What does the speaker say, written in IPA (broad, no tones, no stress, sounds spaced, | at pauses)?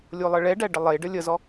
lʲ o lˠ ə ɭ ɛ ɖ æ ɖ ə lˠ e ɖ ə lʲ ə z ɔ